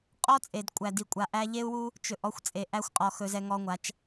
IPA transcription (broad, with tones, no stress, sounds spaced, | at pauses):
qʼ ɔ˦ t͡sʼ e˨ d kʷʼ æ˨ d i˨ kʷʼ a˨ ʔ æ˦ ʎ e˦ u̯ w u˦ | t͡ʃ ɵ˨ ʔ ɔ˦ xʷ t͡sʼ e˨ ʔ æ˦ xʷ qʼ ɔ˨ x ɵ˦ z ɛ˦ ŋ ɔ˦ ŋʷ a˨˦ t͡ʃ